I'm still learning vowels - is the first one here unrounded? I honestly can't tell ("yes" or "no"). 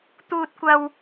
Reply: no